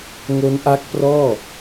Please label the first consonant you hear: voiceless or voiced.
voiced